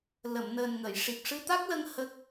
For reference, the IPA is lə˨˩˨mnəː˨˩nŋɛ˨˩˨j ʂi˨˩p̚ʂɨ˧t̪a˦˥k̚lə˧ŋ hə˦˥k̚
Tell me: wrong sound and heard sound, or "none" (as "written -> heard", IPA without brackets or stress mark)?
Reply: ɛ˨˩˨ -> ə˨˩˨